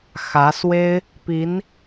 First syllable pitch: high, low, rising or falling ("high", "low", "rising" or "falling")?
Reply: rising